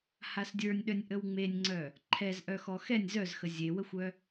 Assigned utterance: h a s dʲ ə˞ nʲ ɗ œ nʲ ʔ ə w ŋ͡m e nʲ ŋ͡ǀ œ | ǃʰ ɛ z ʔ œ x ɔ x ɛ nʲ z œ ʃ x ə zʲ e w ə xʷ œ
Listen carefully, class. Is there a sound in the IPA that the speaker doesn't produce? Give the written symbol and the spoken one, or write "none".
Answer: ʃ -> z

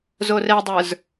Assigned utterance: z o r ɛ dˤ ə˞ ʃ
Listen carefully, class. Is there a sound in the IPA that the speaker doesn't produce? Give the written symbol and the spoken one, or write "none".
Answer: ʃ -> z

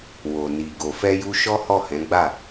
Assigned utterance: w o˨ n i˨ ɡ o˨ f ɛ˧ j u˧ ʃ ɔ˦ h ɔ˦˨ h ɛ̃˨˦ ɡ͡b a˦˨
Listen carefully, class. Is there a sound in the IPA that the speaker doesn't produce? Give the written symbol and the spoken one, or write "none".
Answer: none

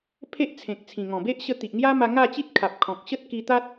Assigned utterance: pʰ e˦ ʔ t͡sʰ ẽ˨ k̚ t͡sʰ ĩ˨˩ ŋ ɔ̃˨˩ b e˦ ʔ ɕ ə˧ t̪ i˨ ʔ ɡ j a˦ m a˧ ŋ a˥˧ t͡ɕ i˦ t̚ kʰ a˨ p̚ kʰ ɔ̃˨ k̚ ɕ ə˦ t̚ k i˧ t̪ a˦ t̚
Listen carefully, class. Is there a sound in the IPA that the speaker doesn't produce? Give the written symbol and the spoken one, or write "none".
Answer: ɡ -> ŋ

